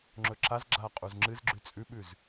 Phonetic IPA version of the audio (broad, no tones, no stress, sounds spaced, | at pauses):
ŋ͡ǁ ɵ ǁ a z ɡ͡ǁ aː qʼ u z ŋ͡ǁ ɨ z ɡ͡ǁ ʉ t͡sʼ ʉ ɓ ʉ z